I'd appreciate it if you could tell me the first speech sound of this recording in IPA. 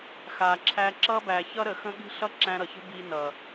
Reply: x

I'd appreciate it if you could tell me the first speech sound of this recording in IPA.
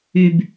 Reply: y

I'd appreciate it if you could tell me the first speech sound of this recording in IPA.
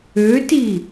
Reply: ø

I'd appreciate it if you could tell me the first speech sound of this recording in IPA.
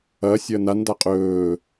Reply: ɐː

